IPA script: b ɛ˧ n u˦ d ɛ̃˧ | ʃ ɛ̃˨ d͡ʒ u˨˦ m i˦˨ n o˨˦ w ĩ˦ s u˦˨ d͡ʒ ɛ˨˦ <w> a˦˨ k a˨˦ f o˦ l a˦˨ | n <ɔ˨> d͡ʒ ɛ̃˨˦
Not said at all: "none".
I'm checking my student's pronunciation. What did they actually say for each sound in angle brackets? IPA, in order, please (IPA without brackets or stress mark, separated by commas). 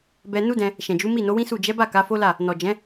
b, ɔ˨